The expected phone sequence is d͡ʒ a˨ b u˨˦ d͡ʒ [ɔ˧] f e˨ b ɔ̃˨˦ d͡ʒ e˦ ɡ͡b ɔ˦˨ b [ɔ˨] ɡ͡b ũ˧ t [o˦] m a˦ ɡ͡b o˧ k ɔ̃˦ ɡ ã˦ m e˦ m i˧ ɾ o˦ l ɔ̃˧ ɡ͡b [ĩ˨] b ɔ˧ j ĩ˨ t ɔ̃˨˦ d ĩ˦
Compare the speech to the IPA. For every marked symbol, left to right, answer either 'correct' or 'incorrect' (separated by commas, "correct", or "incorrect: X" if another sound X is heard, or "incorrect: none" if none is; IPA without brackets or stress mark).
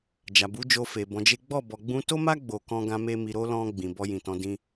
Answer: incorrect: o˧, correct, correct, correct